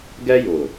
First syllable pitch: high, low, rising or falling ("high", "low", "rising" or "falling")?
high